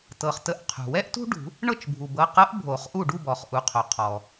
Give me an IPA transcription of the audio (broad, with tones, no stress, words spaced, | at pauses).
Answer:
tɤ˩χtə˨˩˦ʔ qʰṳ˩wɛ˥ʔ tṳ˥ɖṳ˨˩˦ | ɳɤ˥˩t͡ʃ bʱu˩bɤ˩˧˩qɤ˧˥ʔ bʱo˨˩˦χʔu˥˩ ɖu˥˩ bɔ˩χ ʔu˩˧˩qʰo˩ qʰɔ˩